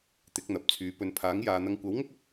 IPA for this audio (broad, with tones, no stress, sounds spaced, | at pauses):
t̪ ɪ˨˥ k̚ n̪ ɐ˨˥ p̚ t͡sʰ yː˨˧ p ɵ˧ n pʰ aː˨˥ ŋ j aː˨ n̪ ɐ˧ ŋ kʷ ɐ˨˥ w ŋ ʊ˥ k̚ ɐ˧ p̚